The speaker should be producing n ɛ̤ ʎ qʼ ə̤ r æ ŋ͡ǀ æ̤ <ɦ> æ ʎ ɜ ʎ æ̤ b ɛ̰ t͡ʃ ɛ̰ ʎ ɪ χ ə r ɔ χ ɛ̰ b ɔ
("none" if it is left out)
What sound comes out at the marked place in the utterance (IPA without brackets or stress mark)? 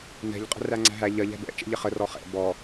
ɦ